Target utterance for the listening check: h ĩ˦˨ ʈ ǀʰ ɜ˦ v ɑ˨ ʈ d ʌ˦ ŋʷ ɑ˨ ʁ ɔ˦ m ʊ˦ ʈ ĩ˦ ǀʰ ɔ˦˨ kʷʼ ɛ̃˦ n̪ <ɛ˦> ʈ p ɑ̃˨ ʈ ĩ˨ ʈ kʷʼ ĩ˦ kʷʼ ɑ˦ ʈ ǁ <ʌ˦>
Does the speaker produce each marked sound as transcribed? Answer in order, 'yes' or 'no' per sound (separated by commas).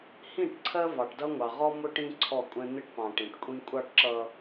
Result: no, yes